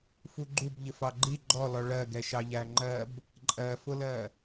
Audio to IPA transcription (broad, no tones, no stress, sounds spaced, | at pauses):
f u ɡ͡ǃ u b ʎ ɪ f ɑ ɡ͡ǃ i ɡ͡ǃ ɔ l ɔ ɭ ɜ ɡ ɛ ʃ ɑ ʎ æ ŋ͡ǃ ɜ b | ǃʼ ɜ f ʊ l ɜ